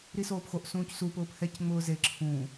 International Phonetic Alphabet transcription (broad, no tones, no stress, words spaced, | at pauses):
ɾisoːpxoʔ sũːcsu pʊːphɛc ŋ͡mʊːze ǁʰũ